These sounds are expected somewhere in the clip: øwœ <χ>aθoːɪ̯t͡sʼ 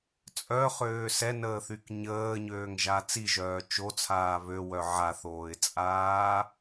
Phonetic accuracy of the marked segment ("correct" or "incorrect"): incorrect